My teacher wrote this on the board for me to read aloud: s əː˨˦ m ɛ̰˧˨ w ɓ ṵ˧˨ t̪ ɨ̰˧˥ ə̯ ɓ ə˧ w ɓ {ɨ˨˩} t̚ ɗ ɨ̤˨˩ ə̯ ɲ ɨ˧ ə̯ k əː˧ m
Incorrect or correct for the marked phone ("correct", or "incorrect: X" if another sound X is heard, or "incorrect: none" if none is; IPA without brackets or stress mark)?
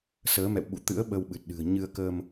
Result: correct